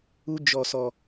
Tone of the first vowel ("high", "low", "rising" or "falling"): high